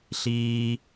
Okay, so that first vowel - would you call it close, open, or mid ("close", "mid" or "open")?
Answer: close